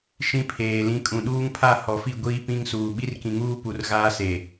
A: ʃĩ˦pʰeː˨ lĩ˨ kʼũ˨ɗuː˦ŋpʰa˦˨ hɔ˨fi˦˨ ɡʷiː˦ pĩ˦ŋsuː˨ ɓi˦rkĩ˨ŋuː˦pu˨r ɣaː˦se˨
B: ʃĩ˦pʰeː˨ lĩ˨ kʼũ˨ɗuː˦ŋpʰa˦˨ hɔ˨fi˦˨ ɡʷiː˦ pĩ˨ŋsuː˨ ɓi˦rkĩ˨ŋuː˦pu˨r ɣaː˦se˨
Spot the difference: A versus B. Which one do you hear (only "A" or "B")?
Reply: A